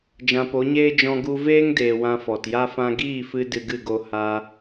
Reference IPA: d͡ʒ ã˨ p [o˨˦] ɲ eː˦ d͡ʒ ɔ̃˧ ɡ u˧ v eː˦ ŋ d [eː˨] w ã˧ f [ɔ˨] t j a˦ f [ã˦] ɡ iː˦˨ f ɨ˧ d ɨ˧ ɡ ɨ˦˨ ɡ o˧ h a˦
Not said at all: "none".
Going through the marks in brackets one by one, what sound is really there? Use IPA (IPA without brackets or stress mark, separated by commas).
o˨˦, eː˨, ɔ˨, ã˦